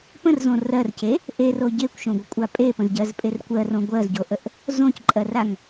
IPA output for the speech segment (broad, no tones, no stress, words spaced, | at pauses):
pə̃rzõ rɜrce | ʔero ɟekʷʃõɡʷəkʷʼa pʼepə̃zɟɜzpʼer kʷɜrõ ɡʷɜzɟoʔəʔ | zõcǃʼɜraŋ